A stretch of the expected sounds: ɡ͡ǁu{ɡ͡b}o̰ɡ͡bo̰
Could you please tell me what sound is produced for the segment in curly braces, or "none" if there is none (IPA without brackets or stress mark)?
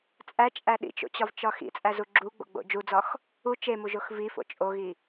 ɡ͡b